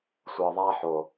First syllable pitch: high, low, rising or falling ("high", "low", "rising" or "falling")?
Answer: low